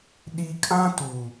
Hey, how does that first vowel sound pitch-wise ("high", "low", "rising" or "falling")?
high